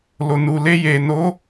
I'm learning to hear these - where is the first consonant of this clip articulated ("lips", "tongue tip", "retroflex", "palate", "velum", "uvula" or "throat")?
tongue tip